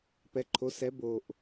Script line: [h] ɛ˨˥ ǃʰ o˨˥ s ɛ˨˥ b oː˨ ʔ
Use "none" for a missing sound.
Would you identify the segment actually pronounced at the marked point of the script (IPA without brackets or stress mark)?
p